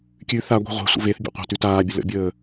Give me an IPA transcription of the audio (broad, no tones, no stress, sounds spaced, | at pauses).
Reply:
kʲ ʉ θ a ɡʷ e̤ ʁʷ e̤ sʷ ə̰ v e θ bʲ ḛ qʷ a̤ t ʉ t aː bʲ ə l ə̰ bʲ əː